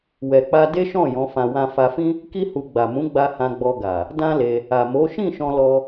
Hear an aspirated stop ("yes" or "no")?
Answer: no